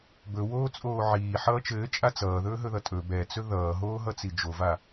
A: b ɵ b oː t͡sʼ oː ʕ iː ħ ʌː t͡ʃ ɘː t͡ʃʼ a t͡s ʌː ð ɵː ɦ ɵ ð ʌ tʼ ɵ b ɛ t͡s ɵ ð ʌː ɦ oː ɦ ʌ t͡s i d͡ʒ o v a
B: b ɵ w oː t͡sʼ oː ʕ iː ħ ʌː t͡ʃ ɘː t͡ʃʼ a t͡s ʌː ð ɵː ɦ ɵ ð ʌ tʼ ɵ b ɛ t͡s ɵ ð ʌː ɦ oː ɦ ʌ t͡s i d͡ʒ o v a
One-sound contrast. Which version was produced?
B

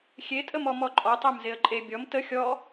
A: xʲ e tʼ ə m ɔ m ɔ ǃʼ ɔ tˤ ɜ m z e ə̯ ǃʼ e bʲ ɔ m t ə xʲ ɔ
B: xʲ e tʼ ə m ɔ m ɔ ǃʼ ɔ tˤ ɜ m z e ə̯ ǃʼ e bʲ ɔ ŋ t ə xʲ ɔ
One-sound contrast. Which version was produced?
A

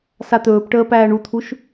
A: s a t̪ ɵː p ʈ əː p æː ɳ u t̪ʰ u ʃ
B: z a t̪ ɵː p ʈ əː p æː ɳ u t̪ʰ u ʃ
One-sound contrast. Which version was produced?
A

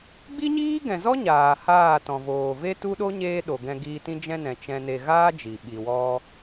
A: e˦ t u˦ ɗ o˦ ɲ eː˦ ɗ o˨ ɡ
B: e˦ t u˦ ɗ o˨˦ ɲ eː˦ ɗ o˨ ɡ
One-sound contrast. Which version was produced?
A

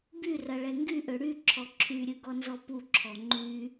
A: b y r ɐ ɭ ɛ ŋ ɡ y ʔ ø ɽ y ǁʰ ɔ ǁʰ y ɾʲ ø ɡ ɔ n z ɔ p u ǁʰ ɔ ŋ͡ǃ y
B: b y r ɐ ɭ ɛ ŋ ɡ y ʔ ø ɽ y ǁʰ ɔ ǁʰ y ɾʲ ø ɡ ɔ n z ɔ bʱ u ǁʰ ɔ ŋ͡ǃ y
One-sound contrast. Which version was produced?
A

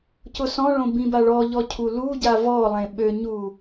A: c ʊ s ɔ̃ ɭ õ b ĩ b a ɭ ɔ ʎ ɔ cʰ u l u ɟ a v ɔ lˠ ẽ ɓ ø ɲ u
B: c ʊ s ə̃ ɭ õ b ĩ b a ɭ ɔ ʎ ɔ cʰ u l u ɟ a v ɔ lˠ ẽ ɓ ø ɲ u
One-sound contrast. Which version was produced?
A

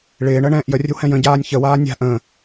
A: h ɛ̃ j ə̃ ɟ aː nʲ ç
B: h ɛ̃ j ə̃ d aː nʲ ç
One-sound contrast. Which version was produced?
A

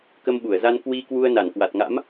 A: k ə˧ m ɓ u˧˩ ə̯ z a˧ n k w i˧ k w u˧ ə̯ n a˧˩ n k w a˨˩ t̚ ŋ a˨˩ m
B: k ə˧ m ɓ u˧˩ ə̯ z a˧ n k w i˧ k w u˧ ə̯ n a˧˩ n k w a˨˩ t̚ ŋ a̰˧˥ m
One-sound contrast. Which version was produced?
B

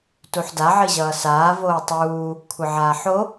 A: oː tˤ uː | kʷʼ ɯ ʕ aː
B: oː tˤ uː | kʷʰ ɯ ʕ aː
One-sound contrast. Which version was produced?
B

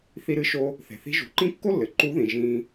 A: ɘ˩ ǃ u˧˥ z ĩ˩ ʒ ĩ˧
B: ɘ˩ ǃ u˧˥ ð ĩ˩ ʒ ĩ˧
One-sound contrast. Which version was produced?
B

